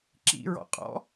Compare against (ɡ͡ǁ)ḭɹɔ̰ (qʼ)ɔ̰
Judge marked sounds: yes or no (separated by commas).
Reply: no, yes